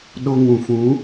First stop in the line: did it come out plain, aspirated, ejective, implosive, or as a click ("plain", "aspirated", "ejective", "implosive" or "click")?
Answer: implosive